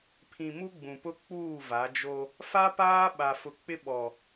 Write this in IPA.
pʰ ĩ˨ m u˦ ɡ͡b ũ˨ p ʊ˦ k͡p uː˦˨ v a˨˦ d͡ʒ o˦ | f a˦ p aː˦ ɓ a˨ f ʊ˨ k͡p ɪ˦ ɓ ɔ˨

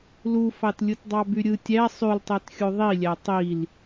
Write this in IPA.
l u f ɑ t lʲ ɯ t dˤ ɑ b y ɾʲ ɯ tʲ æ sˤ y l tˤ e t xʲ u ðˤ i lʲ æ tˤ i l

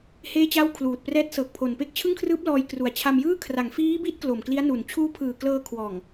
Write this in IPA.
h eː˥˩ t͡ɕ a˥˩ w kʰ l uː˨˩ t̚ p r ɛː˦˥ t̚ s ɤː˨˩ k̚ pʰ o˨˩ n p e˥˩ k̚ t͡ɕʰ ɯ˥˩ ŋ kʰ r ɯː˦˥ p̚ l ɔː˧ j k r u˨˩ a̯ t͡ɕʰ a˧ m j ɯː˥˩ kʰ r a˩˦ ŋ f iː˦˥ b i˦˥ t̚ k l o˨˩ m k l i˦˥ a̯ n u˨˩ n t͡ɕʰ uː˦˥ pʰ ɯː˨˩ k l ɤː˧ kʰ w ɔː˨˩ ŋ

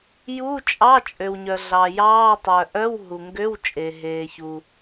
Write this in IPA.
j u˧˥˧ t͡ʃʼ ɑ˧˥˧ t͡ʃʼ ø˩ w ɲ œ˩ ɮ ɑ˩ j ɑː˧˥˧ tˤ œ˩ ʔ œ˧˥˧ w ɦ u˩ ŋ ɡ ø˧˥˧ w t͡ʃʼ e˩ ɦ eː˩ ç u˩

